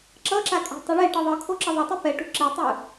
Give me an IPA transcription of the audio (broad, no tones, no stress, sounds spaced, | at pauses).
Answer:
ǁ ʌ ǁ a kʼ e̤ tˤ o ɭ e ʈ ɯ ðˤ ɯ kʰ o ǁ ʌ ðˤ e tˤ i p ɛ ʈ ṳ ǁ e tˤ ɯ